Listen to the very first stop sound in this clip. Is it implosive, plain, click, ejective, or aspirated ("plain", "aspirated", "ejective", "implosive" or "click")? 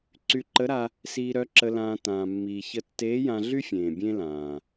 click